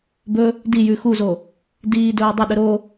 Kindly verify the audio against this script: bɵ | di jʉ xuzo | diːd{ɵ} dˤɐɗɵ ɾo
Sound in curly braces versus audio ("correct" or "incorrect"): incorrect